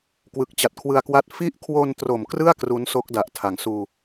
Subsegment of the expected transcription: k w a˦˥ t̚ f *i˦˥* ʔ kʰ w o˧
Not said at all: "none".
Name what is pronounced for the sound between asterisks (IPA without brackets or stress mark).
i˦˥